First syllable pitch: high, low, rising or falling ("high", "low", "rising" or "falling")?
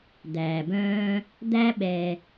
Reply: low